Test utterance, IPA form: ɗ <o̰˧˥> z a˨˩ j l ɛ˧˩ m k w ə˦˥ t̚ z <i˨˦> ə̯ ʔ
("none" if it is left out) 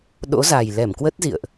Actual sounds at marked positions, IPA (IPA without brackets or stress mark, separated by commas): o̰˧˥, ḭ˧˨